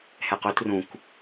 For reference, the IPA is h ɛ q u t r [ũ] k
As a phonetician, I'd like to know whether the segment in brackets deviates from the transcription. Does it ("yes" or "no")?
no